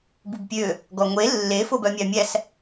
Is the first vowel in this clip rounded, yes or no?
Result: yes